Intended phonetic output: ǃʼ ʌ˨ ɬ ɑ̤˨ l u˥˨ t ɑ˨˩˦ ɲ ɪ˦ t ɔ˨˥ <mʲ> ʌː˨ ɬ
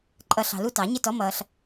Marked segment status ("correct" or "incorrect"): incorrect